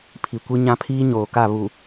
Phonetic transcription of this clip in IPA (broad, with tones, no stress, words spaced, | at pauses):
pʰi˨kʷi˦ ɲã˦pʰiː˦ɲoː˨ka˦˨ βu˨